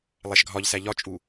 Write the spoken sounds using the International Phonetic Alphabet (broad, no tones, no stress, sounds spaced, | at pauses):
lˠ æ ʃ ɡʱ ɒ ʎ s æ ʎ ɒ t͡ʃʼ u